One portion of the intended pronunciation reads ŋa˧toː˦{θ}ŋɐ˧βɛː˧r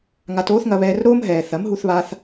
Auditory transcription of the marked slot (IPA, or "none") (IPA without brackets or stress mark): θ